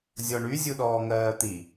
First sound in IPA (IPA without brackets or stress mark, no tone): zʲ